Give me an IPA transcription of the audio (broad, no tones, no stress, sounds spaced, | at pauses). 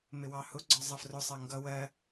m ɪ w ɑ h ʊ ɡ͡ǀ ɒ zˤ ʌ f r ʊ sˤ ɜ ŋ ɡ ʌ w ɜ